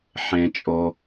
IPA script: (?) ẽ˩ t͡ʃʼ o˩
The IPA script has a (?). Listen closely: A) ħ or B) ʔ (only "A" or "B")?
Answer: A